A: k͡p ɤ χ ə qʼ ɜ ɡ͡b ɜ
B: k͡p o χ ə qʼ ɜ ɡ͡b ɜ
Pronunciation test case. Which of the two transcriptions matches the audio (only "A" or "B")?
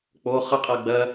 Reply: B